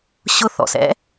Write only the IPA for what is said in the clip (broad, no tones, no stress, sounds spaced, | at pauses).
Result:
ɕ ʊ θ ɔ̰ s ɛ̰